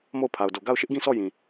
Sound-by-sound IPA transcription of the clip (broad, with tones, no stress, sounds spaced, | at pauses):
m o˦˨ ʊ̯ pʰ a˨ ʊ̯ d o˨ ɡ a˦˨ ʊ̯ ʃ ɪ˦ ʔ ɡ ĩ˦˨ s ɔ˦˨ j ĩ˨